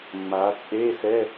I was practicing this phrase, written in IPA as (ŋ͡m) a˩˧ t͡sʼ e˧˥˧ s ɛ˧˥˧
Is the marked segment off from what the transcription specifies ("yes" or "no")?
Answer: no